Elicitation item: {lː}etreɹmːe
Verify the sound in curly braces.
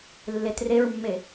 correct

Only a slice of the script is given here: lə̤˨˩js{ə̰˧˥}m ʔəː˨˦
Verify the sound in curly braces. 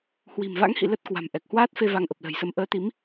incorrect: ə˧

